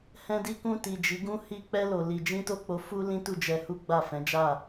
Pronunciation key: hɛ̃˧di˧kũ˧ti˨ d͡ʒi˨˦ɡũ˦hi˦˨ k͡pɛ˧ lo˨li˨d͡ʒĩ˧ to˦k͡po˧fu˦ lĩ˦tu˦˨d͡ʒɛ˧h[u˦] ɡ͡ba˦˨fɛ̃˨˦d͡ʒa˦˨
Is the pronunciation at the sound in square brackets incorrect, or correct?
correct